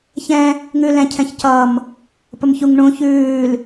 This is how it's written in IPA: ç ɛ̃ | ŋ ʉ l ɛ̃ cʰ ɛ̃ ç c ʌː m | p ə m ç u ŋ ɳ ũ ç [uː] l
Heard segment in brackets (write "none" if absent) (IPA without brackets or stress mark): ʉː